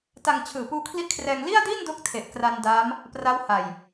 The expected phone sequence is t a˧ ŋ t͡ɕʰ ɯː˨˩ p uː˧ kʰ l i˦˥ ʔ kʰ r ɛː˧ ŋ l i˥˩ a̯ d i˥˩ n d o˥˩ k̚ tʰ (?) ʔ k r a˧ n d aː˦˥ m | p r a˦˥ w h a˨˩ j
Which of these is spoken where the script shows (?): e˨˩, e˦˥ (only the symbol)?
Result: e˨˩